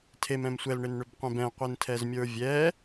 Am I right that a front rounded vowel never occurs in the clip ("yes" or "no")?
no